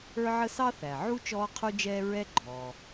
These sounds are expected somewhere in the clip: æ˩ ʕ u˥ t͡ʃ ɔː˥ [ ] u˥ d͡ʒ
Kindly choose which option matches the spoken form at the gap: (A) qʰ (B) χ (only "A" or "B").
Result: A